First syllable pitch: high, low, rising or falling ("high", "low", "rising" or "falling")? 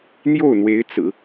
falling